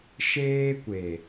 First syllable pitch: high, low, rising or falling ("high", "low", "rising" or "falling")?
high